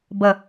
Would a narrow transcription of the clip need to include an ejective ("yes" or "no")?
no